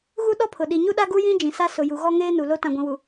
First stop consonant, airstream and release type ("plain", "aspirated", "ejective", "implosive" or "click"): implosive